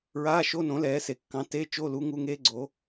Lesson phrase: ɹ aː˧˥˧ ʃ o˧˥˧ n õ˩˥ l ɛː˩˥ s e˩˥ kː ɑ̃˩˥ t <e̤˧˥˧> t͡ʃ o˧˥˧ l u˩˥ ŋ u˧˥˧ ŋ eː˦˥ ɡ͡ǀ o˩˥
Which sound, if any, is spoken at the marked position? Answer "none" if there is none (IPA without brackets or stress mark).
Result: e˧˥˧